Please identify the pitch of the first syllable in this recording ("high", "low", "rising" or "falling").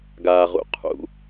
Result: low